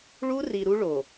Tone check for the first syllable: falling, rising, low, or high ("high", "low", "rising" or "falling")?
high